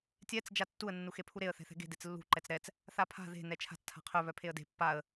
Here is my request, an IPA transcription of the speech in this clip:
tʲ ɛ t͡s d͡ʒ a tː u ə̯ nː u x e pʰ u ɾ e ə̯ θ ɛ̤ θ ɛ̤ ɡ e̤ d e t͡s lː ṳ ǃ ɛ t͡s ɾ ɛ t͡s | θ a pʰ a̤ ð e̤ n ɛ t͡ʃʰ a̤ t͡s tʰ a̤ qʰ œ β œ pʰ e ə̯ d e̤ pː a ə̯

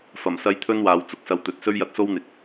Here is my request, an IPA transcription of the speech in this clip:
f ɐ˨˩ m s ɐ˧ j t̪ʰ ɵ˥ n w aː˨˧ w t͡s ʊ˧ k̚ s ɐ˧ w t̪ ɵ˨˥ t̚ s ɵ˥ ɥ j ɐ˧ t̚ s o˥ w n̪ ɪ˨ k̚

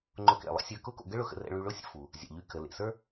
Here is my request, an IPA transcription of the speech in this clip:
ŋ͡ǃ ʊ˧ k ḛ˩ lˠ ə̰˥ sʲ ə˞˧ k ʊ˥ k o̰˧ ɡ ə˥ ɭ ʊ˧ x ə̰˧ r ɛ̰˧ ɭ y˧ ɭ ʊ˥ sʲ ə̰˥ f u˩ | zʲ a̰˩ ʎ y˧ k ə˩ l ḛ˩ s ə˞˥

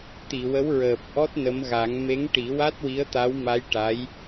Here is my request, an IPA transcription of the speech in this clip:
t̪ i˨˩˨ w ə˧˥ w ɹ əː˨˩ p̚ ʔ ɔ˦˥ t̚ n ə˧˥ m ɣ a˨˩˦ ŋ m e˧˥ ŋ ʈ i˨˩˦ w a˦˥ t̚ w i˧˥ ə̯ t̪ a˧˥ w m a˧˥ j ʈ a˧˥ j

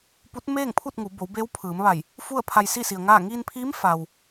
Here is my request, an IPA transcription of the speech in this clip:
p u˧˥ t̚ m eː˥˨ ŋ pʰ u˥˨ t̚ ŋ u˩˧ b o˩˧ w b eː˧˥ w pʰ ɯː˩˧ m ʋ a˧˩ j | f u˥˨ ə̯ pʰ a˧ j s i˥˨ s i˩ ə̯ ŋ aː˥˨ ŋ iː˧ n pʰ i˧˥ m f a˩ w

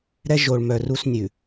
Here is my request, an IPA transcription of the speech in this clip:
ɾ ɛ˦ ʒ o˨ ɭ m œ˨ r u˦ s nʲ ʉ˨

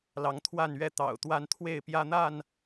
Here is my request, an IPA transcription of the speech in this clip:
l ɑ˨˦ ŋ t̪ʰ w a˥˨ n ɥ ɛ˥˨ t̪ ɑ̰˨˩ ʊ̯ t̪ w a˦ n t̪ʰ w e˥˨ ɪ̯ p j ä˦ n̪ a˥˨ n

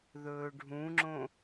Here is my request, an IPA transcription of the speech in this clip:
ð ɵː ɖʱ ũ ŋ͡ǁ õ

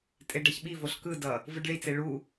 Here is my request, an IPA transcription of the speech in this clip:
tʼ e ɖ a ç ɓ i v o ɬ k ɯ d ʌ | v ɯ ɖ ɭ i t͡s e ɭ u

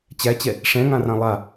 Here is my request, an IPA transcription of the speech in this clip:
t͡ɕ æ t͡ɕ ɛ | ʂ ɛ̃ ŋ ã r ã lˠ a

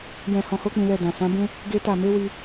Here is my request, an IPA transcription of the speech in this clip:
j ɛ̃˧ h ɔ̃˧ h o˦ k͡p ĩ˧ l ɛ˧ d ã˨ s ã˨˦ b ũ˦ | ɡ e˦ t a˦˨ m e˨˦ w i˧

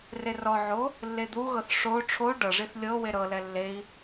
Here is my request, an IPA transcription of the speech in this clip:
r e r ɔ ʕ o | lː e d̪ u ɣ ɤ θ ʂ o ʈ͡ʂʰ o ɖ ɤ ʐ i θ lʲ ɤ w e ɾ ɤ l ɛ lː e i̯

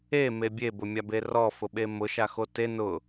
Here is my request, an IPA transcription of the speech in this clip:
e m e bʲ e b ʊ mʲ a b e r ɔ f ʊ ɓ e m ʊ ʃ a x o t e n ʊ

